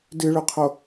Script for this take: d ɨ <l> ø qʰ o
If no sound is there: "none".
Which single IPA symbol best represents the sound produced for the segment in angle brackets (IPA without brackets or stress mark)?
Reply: ɭ